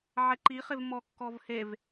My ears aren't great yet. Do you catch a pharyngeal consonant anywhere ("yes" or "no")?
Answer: yes